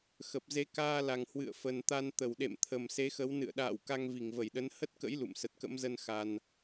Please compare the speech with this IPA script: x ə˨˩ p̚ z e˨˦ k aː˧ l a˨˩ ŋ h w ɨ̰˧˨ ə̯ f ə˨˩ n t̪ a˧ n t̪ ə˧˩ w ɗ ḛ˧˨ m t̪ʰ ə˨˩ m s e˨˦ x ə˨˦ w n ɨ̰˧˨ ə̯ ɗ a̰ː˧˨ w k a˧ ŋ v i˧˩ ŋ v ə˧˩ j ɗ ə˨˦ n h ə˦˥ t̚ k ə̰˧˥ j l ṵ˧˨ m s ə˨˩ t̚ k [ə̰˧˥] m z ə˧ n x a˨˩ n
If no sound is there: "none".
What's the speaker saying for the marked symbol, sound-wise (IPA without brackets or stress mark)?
ə̰˧˥